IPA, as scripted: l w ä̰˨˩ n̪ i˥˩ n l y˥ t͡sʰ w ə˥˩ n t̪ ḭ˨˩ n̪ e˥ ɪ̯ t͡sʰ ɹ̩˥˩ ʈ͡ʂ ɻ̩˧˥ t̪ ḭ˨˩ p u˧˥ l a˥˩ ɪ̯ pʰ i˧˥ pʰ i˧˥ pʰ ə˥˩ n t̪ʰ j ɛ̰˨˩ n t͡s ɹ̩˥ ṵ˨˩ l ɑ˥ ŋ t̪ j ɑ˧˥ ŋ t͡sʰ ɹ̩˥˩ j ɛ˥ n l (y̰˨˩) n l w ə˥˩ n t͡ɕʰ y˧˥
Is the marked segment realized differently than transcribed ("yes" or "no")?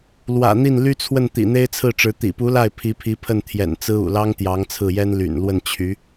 no